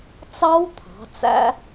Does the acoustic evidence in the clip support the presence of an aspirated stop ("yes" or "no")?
yes